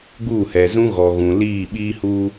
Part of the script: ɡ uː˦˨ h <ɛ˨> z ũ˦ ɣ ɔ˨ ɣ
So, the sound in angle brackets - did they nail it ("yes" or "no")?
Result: yes